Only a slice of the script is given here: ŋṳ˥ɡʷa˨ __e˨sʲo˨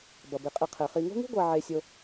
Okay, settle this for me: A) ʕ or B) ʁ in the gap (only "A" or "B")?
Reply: A